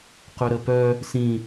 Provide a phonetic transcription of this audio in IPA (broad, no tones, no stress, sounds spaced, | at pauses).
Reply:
q y ɾ ə p œ | s ĩ